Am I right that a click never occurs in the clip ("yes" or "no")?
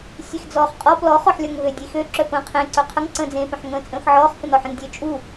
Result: no